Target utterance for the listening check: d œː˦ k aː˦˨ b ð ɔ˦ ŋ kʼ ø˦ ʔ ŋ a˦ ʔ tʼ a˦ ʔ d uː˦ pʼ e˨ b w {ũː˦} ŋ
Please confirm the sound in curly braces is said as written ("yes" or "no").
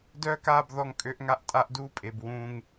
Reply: yes